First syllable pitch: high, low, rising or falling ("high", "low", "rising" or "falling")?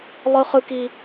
high